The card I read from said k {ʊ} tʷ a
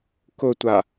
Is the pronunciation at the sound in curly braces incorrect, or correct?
correct